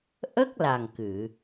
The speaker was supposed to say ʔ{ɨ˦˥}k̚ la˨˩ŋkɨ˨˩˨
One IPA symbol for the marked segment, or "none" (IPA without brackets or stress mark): ə˦˥